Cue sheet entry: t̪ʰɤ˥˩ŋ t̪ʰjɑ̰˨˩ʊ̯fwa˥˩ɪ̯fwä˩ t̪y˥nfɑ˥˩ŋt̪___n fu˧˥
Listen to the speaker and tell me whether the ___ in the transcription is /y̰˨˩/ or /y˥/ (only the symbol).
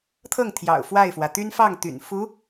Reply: y̰˨˩